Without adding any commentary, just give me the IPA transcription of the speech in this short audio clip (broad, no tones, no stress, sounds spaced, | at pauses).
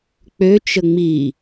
k͡p ø t͡ʃ ə ŋ͡m i